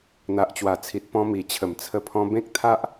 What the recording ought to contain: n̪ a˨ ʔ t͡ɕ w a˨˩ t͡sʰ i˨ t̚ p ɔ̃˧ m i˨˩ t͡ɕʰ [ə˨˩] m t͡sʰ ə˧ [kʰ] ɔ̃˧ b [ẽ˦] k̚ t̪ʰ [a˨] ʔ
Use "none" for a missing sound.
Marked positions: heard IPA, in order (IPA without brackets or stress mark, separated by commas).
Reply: ə˨˩, pʰ, ẽ˦, a˦